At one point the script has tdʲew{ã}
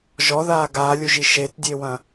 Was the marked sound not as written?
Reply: yes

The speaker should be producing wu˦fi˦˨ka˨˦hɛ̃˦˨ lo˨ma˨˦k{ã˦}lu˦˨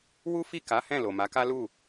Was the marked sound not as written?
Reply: yes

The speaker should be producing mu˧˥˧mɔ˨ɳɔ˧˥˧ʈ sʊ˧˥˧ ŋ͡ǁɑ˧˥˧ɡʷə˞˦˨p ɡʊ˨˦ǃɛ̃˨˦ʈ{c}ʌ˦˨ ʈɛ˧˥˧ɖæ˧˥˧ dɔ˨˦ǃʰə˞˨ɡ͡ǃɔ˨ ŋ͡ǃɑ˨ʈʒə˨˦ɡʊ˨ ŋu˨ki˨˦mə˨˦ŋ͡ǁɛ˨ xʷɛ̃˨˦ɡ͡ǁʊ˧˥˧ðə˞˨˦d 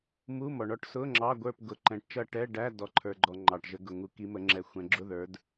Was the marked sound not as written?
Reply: yes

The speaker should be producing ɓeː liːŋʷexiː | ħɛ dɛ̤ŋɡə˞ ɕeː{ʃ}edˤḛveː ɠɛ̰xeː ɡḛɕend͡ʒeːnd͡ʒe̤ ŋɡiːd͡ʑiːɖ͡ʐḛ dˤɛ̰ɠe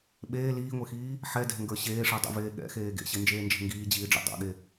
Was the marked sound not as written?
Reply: yes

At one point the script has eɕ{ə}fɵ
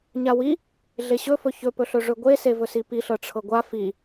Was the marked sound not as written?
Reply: yes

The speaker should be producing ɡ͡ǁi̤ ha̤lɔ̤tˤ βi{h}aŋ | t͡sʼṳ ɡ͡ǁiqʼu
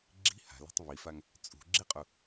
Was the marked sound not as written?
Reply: yes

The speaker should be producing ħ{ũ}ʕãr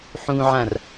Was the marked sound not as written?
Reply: no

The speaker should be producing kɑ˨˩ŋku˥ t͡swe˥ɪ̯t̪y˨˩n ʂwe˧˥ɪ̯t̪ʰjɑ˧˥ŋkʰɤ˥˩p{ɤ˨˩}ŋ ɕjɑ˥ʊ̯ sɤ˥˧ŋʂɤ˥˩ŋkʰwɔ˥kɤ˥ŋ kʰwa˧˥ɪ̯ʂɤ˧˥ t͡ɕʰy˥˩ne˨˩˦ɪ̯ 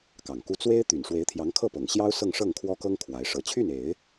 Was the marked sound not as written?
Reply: no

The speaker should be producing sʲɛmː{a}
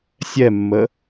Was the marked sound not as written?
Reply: yes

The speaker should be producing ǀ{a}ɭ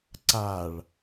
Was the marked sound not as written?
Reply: no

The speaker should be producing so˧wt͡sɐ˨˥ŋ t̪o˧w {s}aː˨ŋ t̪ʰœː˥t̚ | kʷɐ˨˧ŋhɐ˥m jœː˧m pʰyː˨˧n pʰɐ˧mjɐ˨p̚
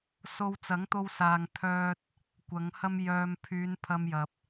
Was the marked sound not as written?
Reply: no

